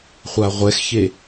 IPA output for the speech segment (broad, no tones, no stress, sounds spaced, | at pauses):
χʷ a ʁʷ ɛ x ç e